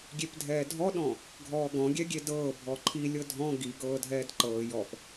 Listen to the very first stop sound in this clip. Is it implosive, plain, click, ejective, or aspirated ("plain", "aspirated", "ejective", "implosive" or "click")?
plain